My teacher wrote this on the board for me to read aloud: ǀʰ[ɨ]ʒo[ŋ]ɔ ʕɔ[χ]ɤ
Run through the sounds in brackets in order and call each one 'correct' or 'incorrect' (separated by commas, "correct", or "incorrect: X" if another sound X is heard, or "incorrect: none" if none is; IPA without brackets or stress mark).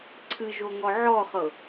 correct, correct, correct